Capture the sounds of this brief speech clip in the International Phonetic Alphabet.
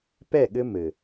p ɛ˦˨ ɠ ɘ˦ m ɘ˨

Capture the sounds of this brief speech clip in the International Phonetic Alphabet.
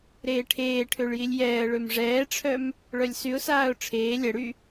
ɾ eː ʈʰ eː ʈʰ ø ɭ j i lʲ j ɛː ə̯ ɭ ø m ʐ ɛː ʈ͡ʂʰ œ m | ɭ œ lʲ s y ʊ̯ s aː ʊ̯ ʈ͡ʂʰ eː lʲ ɛ ɽ y

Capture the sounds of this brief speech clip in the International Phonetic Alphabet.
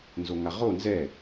n z o ŋ a ʁ o n z ɛ

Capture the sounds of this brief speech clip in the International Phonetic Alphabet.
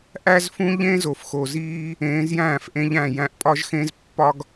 ʔ æ˦ z f ũ˦ ʎ ẽ˦ z o˨ f x o˨ z iː˦ | ẽː˨˦ z j æ̃ː˦˨ f ʔ ẽ˦ ʎ æ̃˦˨ j æ̃˧ ʔ pʼ ɒ˦ ʒ x ẽ˦ z pː ɒ˦ ɡ

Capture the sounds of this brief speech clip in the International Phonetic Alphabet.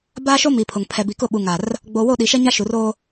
b aː˦ ʃ o˦ m i˨ pʰ ʊ˨ ŋ pʰ ɛ˨ b i˨ k ʊ˦˨ ɓ u˨ ŋ a˨ r | ɡ͡b o˨ w o˦˨ ɗ i˨ ʃ ɛ˦ ɲ a˦ ʃ u˨ r oː˦

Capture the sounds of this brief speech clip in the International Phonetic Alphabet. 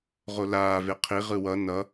ʁ o l aː v e qʰ i ʁ ɯ w ʌ n ʌ

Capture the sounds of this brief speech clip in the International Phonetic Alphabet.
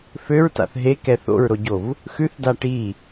f ø ɹ t a̰ θ ɦ e k ɛ θ o̰ ɹ ɾ o ɟ o v | x ʉ θ d a ʈ i

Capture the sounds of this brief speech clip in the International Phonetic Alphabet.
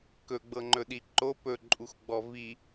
k ɵ ɡ͡b ɤ ŋ͡ǃ ɵ ɗ i ǃ o p ɵ ǃʼ u x ɡ͡b ɔ v i

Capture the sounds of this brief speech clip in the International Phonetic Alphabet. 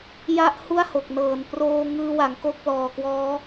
j a˥˩ ʔ h u˥˩ a̯ h o˨˩ k̚ n ɤː˨˩ n p r oː˧ ŋ ɯː˧ w a˩˦ ŋ k o˥˩ k̚ l ɔː˨˩ k w ɔː˦˥

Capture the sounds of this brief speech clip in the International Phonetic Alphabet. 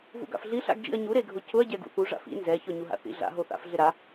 v ṵ ɡ a̰ f ɮ i ɬ a̰ ɡ d͡ʒ ḭ ɐ̯ ɲ u ɾ e ɡʱ ʊ c ʊ ɐ̯ ɟ ɛ ɡ ṵ θ u ʐ a̰ f ḭ n z ɛ ç ɔ ɲ u ɦ a̰ θ ḭ ɮ a̰ ɦ o θ a̰ f ɮ ɪ ɾ a

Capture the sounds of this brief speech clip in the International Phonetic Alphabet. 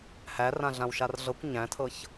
h æ r ã ɮ ã w ʃ a r ɮ ɤ kʷ ɲ æ̃ tʰ ɤ ç

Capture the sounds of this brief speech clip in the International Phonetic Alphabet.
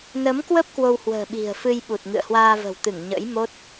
n ə˨˦ m k w ə˦˥ p̚ k w o˧ w h w ə̤ː˨˩ ɓ i̤˨˩ ə̯ f ɨ˧ j ɓ u˨˩ t̚ ŋ ɨ̰˧˨ ə̯ h w aː˧ v ə̤˨˩ w t̪ ɨ˧˩ ŋ ɲ ə̰˧˥ j m o˦˥ t̚

